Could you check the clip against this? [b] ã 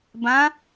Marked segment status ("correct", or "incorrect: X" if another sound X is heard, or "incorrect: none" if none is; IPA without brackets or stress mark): correct